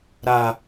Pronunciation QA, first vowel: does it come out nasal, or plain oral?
oral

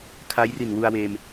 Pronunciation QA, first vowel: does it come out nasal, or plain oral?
oral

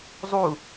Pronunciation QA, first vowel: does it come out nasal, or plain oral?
oral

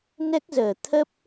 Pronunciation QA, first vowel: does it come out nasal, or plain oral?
oral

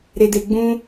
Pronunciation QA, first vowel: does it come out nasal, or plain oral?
oral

